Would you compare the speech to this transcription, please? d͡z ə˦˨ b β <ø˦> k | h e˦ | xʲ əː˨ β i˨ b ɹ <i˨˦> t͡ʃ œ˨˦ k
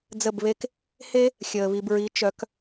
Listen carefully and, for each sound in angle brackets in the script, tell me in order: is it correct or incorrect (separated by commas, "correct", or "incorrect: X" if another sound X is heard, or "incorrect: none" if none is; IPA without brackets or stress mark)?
incorrect: e˦, correct